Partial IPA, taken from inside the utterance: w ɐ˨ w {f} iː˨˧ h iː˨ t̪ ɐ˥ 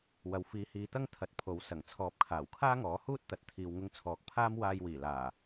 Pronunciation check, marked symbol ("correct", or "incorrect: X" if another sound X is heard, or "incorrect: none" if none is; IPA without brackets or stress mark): correct